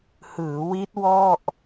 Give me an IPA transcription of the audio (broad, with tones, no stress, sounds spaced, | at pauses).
h ɯː˩˦ w i˦˥ t̚ w ɔ˥˩ ʔ